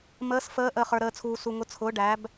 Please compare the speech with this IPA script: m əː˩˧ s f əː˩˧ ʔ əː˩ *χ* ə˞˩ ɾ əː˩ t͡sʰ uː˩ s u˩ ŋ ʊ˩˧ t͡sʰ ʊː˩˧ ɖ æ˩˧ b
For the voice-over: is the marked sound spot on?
yes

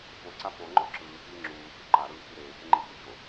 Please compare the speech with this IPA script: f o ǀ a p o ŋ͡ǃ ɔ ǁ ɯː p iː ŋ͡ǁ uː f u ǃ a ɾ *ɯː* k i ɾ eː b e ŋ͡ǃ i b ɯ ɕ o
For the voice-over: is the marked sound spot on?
yes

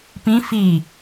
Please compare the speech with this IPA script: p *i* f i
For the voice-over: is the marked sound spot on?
no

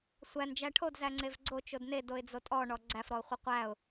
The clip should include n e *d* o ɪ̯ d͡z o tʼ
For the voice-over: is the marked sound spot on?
yes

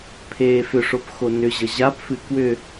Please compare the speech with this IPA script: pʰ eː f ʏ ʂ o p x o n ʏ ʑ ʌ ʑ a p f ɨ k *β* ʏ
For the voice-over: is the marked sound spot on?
no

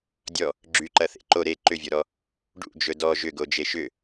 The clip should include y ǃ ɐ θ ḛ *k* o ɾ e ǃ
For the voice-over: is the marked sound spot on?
no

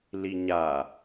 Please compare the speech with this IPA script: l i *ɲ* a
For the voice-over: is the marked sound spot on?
yes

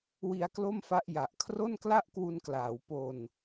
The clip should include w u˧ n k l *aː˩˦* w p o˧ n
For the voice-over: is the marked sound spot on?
yes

